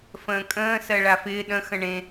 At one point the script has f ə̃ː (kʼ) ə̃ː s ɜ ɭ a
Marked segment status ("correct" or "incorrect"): correct